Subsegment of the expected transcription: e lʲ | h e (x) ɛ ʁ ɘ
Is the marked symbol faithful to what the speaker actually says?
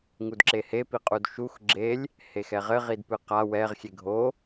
yes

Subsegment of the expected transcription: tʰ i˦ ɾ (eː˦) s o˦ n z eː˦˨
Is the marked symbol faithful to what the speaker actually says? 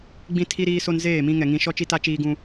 no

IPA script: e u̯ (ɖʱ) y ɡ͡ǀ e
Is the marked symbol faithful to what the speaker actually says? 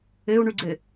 no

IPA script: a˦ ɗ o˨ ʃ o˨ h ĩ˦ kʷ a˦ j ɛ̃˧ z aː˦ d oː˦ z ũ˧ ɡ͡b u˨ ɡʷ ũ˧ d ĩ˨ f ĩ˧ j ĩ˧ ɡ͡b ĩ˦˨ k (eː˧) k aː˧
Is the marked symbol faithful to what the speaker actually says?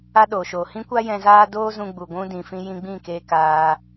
yes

